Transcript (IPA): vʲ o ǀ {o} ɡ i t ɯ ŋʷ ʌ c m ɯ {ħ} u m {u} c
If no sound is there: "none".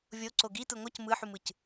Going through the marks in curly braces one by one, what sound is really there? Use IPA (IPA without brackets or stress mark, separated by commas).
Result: o, ħ, ɯ